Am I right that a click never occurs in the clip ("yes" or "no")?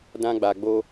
yes